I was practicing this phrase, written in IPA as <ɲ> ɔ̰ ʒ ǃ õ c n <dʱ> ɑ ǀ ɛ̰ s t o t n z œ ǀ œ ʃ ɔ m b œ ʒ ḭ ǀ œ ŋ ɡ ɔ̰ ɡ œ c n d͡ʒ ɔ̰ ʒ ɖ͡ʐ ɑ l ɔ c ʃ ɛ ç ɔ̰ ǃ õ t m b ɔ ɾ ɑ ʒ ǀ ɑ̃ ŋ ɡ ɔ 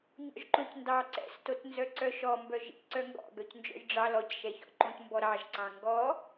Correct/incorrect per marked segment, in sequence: correct, incorrect

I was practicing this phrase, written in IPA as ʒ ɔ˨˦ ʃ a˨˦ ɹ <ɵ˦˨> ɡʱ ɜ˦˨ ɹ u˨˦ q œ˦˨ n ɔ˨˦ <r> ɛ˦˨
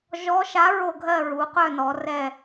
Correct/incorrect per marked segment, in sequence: incorrect, correct

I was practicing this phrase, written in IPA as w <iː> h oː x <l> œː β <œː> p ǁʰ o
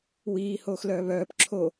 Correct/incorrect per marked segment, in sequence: correct, correct, correct

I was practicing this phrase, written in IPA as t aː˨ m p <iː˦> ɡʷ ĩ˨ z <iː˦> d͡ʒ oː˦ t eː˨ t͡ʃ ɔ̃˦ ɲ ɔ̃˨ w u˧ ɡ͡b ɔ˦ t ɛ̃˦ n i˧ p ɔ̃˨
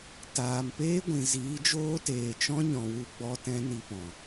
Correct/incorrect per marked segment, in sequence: incorrect, incorrect

